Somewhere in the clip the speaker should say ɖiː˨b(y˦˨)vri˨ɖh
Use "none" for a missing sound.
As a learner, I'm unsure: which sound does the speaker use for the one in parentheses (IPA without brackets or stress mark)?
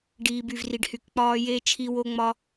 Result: y˨